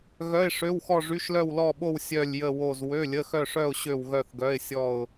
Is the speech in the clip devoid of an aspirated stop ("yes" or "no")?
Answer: yes